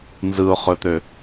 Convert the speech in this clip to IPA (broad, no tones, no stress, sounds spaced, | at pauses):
n z ɯ ʊ̯ χ ɵ t̪ ø